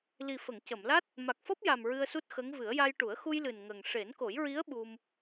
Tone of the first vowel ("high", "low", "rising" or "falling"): low